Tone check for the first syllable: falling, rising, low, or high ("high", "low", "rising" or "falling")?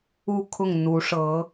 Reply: falling